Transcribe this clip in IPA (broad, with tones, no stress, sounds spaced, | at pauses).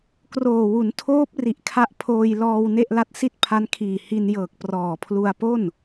k r oː˨˩ w u˩˦ n tʰ oː˦˥ p̚ r i˨˩ ʔ kʰ a˦˥ ʔ pʰ oː˧ j l ɔː˧ w n e˥˩ ʔ l a˦˥ t̚ s i˥˩ t̚ pʰ a˦˥ n kʰ iː˨˩ h i˧ n j ɤː˨˩ k̚ p r ɔː˨˩ pʰ l u˧ a̯ p o˥˩ n